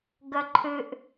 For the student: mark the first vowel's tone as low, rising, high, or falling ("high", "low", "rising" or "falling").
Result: high